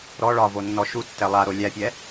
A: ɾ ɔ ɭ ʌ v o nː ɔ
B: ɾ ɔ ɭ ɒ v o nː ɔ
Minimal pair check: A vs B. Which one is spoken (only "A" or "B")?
B